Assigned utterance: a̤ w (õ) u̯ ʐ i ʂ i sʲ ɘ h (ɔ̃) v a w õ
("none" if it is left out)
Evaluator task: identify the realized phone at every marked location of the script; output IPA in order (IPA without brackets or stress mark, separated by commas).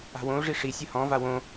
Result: õ, ɔ̃